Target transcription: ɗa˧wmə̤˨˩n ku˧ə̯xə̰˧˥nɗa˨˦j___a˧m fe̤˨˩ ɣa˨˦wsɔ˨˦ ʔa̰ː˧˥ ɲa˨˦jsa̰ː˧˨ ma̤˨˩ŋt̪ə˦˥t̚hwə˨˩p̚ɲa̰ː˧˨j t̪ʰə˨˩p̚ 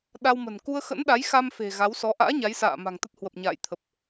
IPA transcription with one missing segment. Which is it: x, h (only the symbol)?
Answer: x